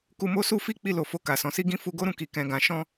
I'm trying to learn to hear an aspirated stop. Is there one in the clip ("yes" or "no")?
no